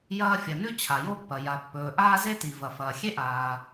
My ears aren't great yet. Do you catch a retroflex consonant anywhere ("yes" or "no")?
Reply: no